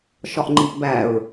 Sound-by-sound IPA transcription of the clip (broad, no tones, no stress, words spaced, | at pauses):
ʃɒʔŋ͡ǃiʔbæɹ